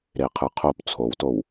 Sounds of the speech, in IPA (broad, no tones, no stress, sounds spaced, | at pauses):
ɾ e qʰ ɯ qʰ o p t͡sʰ o w t o w